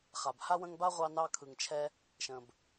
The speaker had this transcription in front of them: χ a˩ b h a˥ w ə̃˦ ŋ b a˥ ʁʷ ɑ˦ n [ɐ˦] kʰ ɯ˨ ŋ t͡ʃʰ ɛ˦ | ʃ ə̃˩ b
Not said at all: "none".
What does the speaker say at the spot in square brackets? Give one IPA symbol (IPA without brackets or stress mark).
ɑ˦